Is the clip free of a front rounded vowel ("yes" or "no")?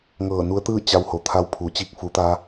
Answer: yes